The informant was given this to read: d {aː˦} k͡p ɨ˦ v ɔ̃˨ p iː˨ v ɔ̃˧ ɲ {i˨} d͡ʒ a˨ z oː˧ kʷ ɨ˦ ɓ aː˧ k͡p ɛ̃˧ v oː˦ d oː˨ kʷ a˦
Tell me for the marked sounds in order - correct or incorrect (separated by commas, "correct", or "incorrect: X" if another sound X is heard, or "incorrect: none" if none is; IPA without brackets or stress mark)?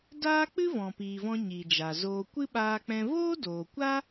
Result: correct, correct